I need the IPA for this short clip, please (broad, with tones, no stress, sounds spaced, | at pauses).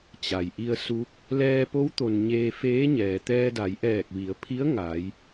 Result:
t͡ɕ a˩ j ʔ i˧ ə̯ s u˧˥ k̚ | l ɛː˧ p o˧˥ w t̪ o˩ n ɲ eː˧ f eː˧˥ ɲ ɛː˩ t̪ ɛː˧ d a˩˧ j ʔ ɛː˧˩ k̚ ʋ i˩˧ ə̯ pʰ i˧˥ ə̯ ŋ a˩˧ j